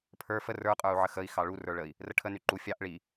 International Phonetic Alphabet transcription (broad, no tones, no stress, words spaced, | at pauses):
pʰə˞ fə rə˞qʼə˞u̯ʕə xəi̯xɑ ɭu rə˞ɭəi̯ | rəʈʰə nyǃu fʲɑʔ ɭi